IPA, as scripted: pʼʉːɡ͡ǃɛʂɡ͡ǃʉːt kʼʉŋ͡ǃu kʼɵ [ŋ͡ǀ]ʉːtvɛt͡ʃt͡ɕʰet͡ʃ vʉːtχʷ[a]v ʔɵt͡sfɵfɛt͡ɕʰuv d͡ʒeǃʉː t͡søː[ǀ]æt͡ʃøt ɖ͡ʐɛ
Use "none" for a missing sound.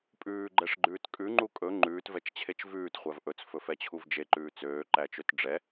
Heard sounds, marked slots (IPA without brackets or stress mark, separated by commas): ŋ͡ǃ, æ, ǃ